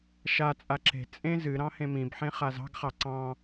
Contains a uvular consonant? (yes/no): yes